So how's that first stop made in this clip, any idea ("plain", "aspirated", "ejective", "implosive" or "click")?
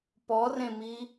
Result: plain